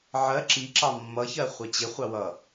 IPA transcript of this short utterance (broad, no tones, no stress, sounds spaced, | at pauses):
ʕ ɜ ǁ i ǁ ɑ mː ʌ ç ɜ χʷ ɛ t͡ɕ ɪ χʷ ɑ w ʌ